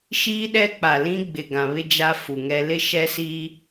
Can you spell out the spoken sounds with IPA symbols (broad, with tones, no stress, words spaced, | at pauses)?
ʃiː˦ɗɛ˦k͡pa˨lĩ˦ ɡ͡bɪ˨ɡã˨βɪ˦ d͡ʒa˦fu˨ŋɛ˦ lɪ˦ʃɛ˦siː˦